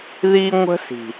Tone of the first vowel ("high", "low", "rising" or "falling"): high